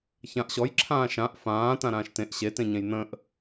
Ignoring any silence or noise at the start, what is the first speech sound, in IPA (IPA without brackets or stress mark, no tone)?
ç